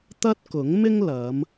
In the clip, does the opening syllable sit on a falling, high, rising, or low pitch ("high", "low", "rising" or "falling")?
high